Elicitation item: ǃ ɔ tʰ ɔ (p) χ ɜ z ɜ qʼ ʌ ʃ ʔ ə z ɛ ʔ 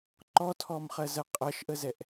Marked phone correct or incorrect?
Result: incorrect